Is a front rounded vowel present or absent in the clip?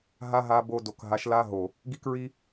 absent